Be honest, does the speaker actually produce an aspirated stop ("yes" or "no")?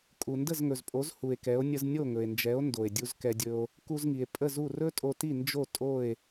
no